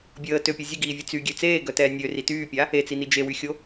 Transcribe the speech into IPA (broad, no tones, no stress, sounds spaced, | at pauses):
bʲ əː t ø pʲ ø zʲ ə ɡ iː vʲ e t͡s y ɡʲ ø t͡s eː ɡ œ t ɛː nʲ ø r i t yː pʲ a | e t͡s i n i d͡ʒ e w y xʲ o